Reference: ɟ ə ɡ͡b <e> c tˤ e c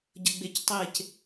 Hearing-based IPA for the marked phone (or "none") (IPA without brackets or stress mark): e